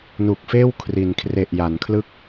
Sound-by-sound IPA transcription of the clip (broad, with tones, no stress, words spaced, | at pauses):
nu˨˩k̚feː˥˩w kʰri˩˦n kʰre˨˩ʔja˩˦nkʰlɯ˥˩k̚